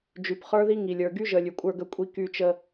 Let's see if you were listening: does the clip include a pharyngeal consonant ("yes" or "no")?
no